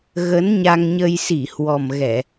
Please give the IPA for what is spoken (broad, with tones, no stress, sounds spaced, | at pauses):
ɣ ə˨˦ n ɲ a˧ ŋ ɲ ə˧ j s i˧˩ h w ɔ˨˩ m ɣ ɛ˧˩˨